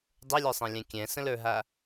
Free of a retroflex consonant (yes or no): yes